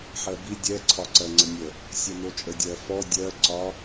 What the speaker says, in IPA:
ħ ɜ b i dʲ ɛ ǀʰ ɒ ǀ ɜ ŋ͡ǀ ə nʲ ə | sʲ ɜ n o t͡ʃʼ ə dʲ ɜ f ɔ dʲ ɜ ǀ ɒ

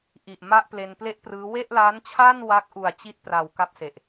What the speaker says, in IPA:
ʔ i˨˩ ʔ m a˥˩ ʔ p l e˧ n p l e˥˩ ʔ p r ɯː˦˥ w e˥˩ ʔ l a˦˥ n t͡ɕʰ a˥˩ n w a˦˥ k̚ ʔ u˨˩ a̯ t͡ɕ i˥˩ t̚ p r a˨˩ w k a˥˩ p̚ s e˨˩ ʔ

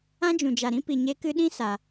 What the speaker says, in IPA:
ã˦ d͡ʒ ũ˨ d͡ʒ a˨ ɾ ĩ˦ p i˨ ɲ e˧ k ɨ˧ ɗ ĩ˦ s a˨

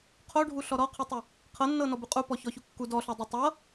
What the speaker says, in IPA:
qʰ o ɖʱ u ɬ ɔ ɾ ɔ qʰ u tˤ u | qʰ ɤ nː ɤ n ɔ b u qʼ u p ɔ ç ɔ ç u kː u d ɔ ɬ ɔ dˤ ɤ tˤ ɤ

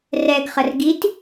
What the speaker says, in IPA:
r ɛ ɡ χ ə r ɡ i t

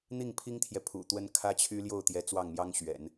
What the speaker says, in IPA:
n̪ i˥˩ ŋ pʰ i˥ ŋ t̪ʰ j ɛ˨ pʰ ṵ˨˩ t̪ w ə˥ n kʰ ä˥ t͡ɕʰ y˥ l j o˥˩ ʊ̯ t̪ j ɛ˧˥ t͡s w ɑ˥˩ ŋ m j ɑ˥ ŋ ɕ ɥ ɛ̰˨˩˦ n

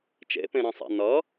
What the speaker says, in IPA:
t͡ʃ ḛ p ẽ ɾ ẽ sˤ ɛ̰ n ʌ

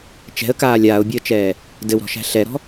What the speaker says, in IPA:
t͡ʃ ɛ̤ ə̯ k aː lʲ aː ʊ̯ bʲ əː t͡ʃ ɛː | d ɘ w ɾ ɔ̤ ʃ æ̤ ɬ ɛ ɾ ɔ̤

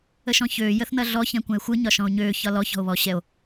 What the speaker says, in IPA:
ə ʃ ɔ̃ ç øː j ə θ n̪ ɐ ɮ ɔ ç ɛ̃ kʷ ɐ̃ e̯ xʷ ɯ ɲ ɒ ʃ ɔ̃ o̯ ɲ øː ç ɒ l ɔ ç ɔ̤ o̯ β ɔː ɕ ɛ o̯

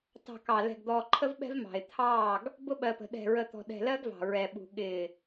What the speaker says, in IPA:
t ɑ̤˨ k ɑ˨ l ɛ̤˨ ɡ d̪ ɔː˨ ǃʰ ə˦ v ɓ ɛ̤˦ v m ɑ̤˨ ɪ̯ t̪ʰ ɑː˦˨ ɡ | b ʊ˦ ɓ ɜ˨ p ə̤˨ ɗ ɛ̤˨ ɹ ə˨ t̪ ɔ̤˨ ɗ ɛ̤˨ l ɜ˦ ɡ v ɑ̤˨ ɹ ɛ˨ ɓ ṳ˨ ɠ ɪː˨

